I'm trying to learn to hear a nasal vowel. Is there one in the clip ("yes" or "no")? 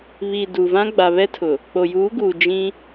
yes